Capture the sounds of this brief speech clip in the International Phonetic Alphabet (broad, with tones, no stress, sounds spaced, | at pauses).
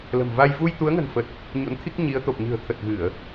l ə̤˨˩ m v a˧ j v u˧ j t̪ u˨˦ ə̯ ŋ ə̤˨˩ n f ə˨˩ t̚ | ɲ o̰˧˥ n t̪ʰ i˦˥ k̚ ɲ i˨˦ ə̯ t̪ o˨˩ p̚ ɲ ɨ̤˨˩ ə̯ t̪ʰ ə˨˩ t̚ ɣ ɨ˧˩˨ ə̯